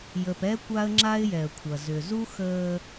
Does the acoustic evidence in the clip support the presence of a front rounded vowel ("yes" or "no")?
yes